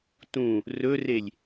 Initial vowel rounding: rounded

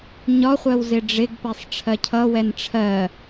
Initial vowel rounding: rounded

